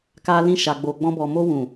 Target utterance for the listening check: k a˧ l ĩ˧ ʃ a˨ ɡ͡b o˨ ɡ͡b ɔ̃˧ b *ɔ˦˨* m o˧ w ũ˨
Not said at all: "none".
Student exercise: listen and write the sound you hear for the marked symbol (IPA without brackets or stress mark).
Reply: ɔ˨